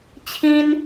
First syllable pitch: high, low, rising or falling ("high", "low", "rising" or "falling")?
high